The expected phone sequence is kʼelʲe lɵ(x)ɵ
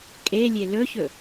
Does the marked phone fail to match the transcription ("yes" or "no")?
yes